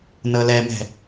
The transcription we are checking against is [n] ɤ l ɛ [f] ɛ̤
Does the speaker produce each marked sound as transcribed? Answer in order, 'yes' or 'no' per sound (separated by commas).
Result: yes, no